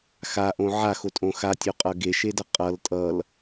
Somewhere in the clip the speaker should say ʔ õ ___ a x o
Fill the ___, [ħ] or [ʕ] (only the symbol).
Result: ʕ